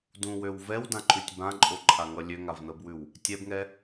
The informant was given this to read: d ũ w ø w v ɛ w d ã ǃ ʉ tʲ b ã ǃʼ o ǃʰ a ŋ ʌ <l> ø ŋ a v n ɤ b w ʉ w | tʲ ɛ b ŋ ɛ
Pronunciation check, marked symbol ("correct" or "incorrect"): incorrect